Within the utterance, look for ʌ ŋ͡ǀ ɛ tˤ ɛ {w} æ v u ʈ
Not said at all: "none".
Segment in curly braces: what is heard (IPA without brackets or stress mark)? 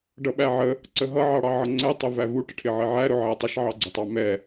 v